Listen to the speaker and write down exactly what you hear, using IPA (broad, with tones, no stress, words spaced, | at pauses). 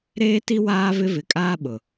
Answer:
ɾeː˦ti˦ waː˦vɪ˦ vɪ˨kʼaː˦ ɓʊ˨